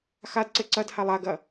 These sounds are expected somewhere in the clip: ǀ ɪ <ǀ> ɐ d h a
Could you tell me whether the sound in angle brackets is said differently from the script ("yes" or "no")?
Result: no